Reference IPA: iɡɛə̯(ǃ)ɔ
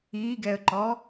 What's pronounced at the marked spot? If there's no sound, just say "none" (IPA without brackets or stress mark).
ǃ